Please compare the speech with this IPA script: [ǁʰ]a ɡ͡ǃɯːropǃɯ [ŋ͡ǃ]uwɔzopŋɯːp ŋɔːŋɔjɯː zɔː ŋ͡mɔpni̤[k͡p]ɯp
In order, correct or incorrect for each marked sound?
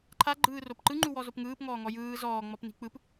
incorrect: ǃʰ, correct, correct

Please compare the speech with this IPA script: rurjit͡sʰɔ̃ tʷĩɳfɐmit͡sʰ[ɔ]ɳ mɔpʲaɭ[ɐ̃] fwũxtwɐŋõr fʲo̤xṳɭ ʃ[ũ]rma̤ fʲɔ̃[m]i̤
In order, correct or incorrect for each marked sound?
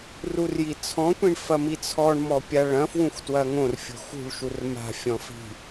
correct, correct, incorrect: u, incorrect: f

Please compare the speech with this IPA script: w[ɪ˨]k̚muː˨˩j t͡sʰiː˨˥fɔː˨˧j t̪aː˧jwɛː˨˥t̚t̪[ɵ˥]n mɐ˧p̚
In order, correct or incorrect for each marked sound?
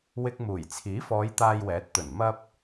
incorrect: ɪ˧, incorrect: ɵ˨˩

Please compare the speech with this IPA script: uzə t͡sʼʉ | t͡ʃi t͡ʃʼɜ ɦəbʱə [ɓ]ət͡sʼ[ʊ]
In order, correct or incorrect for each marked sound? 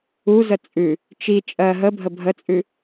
incorrect: bʱ, incorrect: ʉ

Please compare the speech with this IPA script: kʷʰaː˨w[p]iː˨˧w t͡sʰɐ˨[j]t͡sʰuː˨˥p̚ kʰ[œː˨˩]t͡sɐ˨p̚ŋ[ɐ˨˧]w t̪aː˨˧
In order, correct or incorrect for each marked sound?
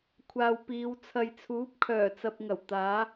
correct, correct, correct, incorrect: ɐ˨˩

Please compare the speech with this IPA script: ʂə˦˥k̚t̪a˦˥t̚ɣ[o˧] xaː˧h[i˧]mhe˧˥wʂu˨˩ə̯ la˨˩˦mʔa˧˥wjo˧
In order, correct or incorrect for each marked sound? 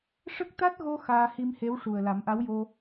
correct, correct

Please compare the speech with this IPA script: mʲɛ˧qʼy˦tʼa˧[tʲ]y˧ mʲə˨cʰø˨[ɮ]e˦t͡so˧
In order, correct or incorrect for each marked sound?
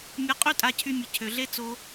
incorrect: cʰ, correct

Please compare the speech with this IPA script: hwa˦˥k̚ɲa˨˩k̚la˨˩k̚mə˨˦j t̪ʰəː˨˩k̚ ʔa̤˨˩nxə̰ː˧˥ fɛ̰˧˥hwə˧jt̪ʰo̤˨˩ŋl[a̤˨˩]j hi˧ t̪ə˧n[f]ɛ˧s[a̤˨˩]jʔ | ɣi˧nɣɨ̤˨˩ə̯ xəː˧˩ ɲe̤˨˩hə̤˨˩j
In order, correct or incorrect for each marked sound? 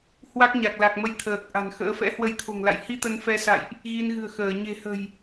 incorrect: a̰˧˨, correct, incorrect: a̰˧˨

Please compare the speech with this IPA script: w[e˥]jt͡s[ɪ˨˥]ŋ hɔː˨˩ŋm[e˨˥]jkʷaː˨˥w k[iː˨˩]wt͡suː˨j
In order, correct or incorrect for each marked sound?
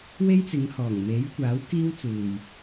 correct, incorrect: ɪ˨˧, correct, incorrect: iː˥

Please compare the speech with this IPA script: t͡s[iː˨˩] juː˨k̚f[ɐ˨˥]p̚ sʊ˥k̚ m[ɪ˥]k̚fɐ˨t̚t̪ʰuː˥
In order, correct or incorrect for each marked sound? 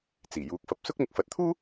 correct, correct, incorrect: ɪ˨˥

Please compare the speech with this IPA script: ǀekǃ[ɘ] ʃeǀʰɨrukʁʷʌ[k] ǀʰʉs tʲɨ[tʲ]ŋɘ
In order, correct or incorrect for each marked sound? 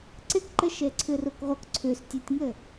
correct, correct, correct

